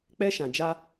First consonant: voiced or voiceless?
voiceless